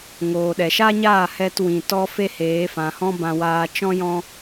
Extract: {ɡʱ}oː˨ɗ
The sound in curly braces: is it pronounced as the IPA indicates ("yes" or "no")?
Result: no